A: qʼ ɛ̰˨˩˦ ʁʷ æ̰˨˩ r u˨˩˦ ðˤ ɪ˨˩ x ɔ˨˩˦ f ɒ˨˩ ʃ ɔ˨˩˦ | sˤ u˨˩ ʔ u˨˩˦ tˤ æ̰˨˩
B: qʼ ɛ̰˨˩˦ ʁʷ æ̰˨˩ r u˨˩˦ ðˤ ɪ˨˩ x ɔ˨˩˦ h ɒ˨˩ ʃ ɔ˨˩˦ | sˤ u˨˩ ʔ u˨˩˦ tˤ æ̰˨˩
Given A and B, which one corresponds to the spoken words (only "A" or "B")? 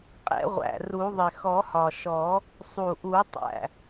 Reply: B